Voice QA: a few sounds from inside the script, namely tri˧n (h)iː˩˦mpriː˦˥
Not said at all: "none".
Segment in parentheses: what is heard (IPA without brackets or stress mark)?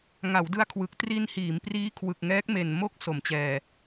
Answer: h